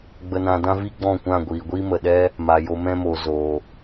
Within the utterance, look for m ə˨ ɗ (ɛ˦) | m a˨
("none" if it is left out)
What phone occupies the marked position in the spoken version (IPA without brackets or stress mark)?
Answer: ɛ˦